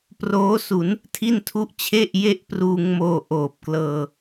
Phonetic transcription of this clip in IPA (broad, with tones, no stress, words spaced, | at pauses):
proː˦˥su˩˦n | tʰi˥˩ntʰu˥˩ʔ t͡ɕʰe˥˩ʔje˥˩ʔpruː˧ŋmoː˧ ʔoː˨˩p̚klɤː˧